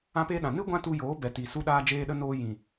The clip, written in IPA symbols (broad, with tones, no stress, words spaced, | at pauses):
ã˦peː˦ɗã˨ nɨ˦ ɡʷã˦tu˧joː˨˦ bɛ˨ti˨ su˧ɗaː˧d͡ʒeː˧ɗə˧ noː˧ jĩ˨